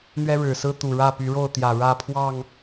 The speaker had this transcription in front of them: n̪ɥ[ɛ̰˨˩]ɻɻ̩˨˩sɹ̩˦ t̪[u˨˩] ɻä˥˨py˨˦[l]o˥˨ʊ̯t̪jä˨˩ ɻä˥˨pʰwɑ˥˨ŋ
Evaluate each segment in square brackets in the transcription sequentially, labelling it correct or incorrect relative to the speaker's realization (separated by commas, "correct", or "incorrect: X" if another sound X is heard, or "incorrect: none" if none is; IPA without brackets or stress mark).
incorrect: ɛ˦, correct, incorrect: ɻ